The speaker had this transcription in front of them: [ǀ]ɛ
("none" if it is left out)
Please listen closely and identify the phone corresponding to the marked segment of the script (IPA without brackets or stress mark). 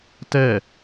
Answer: t